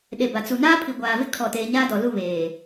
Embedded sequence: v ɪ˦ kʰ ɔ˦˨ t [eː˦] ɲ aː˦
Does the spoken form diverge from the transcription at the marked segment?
no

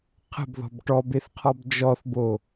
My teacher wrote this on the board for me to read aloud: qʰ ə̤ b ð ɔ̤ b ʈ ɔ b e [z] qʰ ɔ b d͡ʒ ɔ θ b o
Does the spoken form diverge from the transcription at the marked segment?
yes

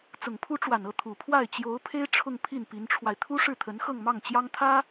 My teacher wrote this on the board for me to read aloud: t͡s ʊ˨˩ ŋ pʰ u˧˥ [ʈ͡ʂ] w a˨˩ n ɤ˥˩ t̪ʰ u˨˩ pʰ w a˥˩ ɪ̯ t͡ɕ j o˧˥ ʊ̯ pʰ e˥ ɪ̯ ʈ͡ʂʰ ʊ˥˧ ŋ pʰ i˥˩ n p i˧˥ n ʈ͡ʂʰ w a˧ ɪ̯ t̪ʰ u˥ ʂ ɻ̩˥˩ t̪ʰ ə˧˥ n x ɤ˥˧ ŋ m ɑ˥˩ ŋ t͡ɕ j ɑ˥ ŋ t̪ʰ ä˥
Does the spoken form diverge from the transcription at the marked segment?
no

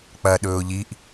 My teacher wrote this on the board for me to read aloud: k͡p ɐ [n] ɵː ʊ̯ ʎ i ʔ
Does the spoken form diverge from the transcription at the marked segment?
yes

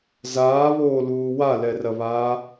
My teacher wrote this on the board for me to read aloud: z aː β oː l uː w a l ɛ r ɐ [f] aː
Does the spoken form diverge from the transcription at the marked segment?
yes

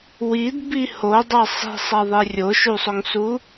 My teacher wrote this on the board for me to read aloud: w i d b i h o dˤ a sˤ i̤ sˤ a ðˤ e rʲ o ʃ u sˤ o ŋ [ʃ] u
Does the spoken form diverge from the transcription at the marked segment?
yes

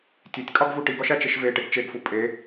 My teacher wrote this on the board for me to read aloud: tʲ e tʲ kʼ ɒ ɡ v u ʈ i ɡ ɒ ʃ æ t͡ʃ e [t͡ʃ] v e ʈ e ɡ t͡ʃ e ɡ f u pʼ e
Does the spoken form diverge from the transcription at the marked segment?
yes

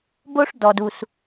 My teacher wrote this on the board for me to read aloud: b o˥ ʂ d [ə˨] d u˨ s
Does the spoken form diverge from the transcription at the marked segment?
yes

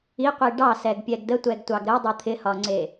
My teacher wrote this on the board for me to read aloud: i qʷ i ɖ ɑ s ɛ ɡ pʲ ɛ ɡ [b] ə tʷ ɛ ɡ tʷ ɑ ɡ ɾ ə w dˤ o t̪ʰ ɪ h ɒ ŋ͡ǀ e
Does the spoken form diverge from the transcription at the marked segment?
yes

